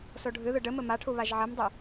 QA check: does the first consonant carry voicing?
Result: no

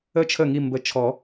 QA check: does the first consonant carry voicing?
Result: no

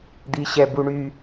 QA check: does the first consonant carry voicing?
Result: yes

